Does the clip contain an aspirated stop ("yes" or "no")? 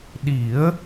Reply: no